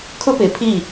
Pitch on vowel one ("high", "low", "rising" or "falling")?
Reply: high